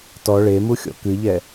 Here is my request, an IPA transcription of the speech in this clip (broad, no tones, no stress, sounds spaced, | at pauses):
t ɔ ɭ e m u xʲ ɔ̰ k ɨ ʎ ɛ